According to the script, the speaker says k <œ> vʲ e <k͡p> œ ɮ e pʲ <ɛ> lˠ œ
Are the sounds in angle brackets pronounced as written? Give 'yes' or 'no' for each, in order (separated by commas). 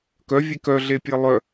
yes, no, no